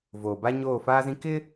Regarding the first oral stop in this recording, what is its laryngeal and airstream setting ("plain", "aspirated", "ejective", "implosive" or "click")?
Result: plain